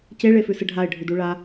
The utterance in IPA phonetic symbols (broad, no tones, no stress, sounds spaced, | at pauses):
c e ɭ e f ʉ s ɨ ɖʱ a ɪ̯ ɖʱ ʉ d u ɭ a